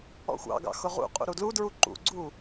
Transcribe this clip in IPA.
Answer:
ɔ̰ xʷ ɑ̰ ɡ ɑ̰ x ʊ ʁ ṵ qʼ ṵ ɾ u d l u d ɹ u ǃ ṵ ɡ͡ǀ u

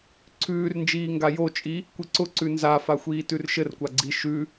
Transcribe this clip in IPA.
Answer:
ǀʰ ʉː r n d͡ʒ iː ŋ ɡ a j o t͡ʃʼ i | kʷ i ǀ ʊ ǀ ʉ n z a f a xʷ iː t ʉ r ʃ ɘ r kʷ a ɡ͡ǀ i ʃ ʉ

